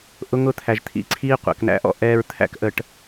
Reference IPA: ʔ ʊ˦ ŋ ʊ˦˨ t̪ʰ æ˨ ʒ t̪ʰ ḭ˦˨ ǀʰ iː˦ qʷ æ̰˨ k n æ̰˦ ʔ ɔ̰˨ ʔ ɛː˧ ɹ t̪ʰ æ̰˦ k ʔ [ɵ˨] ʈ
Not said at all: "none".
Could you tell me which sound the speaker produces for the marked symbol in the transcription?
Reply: ə˨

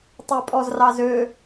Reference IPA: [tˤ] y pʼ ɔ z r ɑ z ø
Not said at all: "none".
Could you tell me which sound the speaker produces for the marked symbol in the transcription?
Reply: tˤ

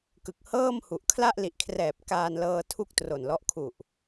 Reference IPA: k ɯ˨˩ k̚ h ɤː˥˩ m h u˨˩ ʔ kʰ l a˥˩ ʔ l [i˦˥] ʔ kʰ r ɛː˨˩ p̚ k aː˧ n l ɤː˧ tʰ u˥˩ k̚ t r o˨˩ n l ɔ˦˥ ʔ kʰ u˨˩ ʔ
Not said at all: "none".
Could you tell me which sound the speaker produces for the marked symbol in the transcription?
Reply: i˨˩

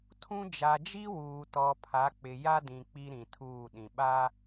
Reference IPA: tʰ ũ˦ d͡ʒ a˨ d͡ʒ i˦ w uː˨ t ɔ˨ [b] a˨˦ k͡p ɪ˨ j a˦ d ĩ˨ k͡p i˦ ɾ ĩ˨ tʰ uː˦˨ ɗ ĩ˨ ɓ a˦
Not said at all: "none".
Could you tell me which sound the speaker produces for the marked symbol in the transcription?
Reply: pʰ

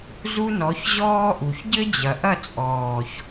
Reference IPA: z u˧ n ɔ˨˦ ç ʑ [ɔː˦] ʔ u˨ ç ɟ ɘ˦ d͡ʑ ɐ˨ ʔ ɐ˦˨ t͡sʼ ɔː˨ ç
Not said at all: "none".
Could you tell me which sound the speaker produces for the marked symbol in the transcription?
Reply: ɔː˦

